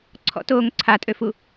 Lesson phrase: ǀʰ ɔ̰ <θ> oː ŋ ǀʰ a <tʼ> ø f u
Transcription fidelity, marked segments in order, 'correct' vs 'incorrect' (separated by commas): incorrect, correct